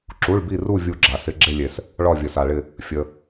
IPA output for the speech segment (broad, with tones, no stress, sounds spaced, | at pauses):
ǁ u˩˧˩ ɭ b i˧˩ r u˧˩ vʲ u˧˩ ɡ͡ǁ a˩ s ɪ˩˧˩ ɡ͡ǁ ɪ˧˩ lʲ e˩ s | ɭ ɒ˧˩ vʲ ə˩ s a˩ ɭ ɪ˧˩ | fʲ ə˩